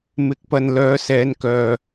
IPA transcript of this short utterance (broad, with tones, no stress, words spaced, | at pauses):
mɪ˨˥k̚pɐ˨n lœː˨˧sɛː˨˧nkœː˨